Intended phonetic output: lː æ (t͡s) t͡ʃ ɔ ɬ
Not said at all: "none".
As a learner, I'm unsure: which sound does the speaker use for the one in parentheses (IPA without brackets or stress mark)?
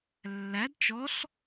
d